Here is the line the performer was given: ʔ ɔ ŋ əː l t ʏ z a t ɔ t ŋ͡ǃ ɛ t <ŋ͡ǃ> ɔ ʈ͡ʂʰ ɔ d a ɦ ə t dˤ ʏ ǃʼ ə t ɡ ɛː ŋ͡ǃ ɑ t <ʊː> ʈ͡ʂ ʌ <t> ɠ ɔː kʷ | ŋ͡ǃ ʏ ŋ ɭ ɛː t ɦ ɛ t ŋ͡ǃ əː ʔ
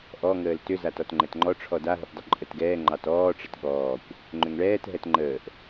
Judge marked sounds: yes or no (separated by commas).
yes, no, yes